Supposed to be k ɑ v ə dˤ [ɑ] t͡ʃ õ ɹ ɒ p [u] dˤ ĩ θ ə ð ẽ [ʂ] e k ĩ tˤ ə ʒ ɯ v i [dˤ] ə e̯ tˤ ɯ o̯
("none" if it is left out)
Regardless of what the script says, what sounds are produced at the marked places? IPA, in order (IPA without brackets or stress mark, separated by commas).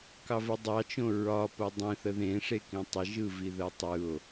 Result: ɑ, o, ʂ, ð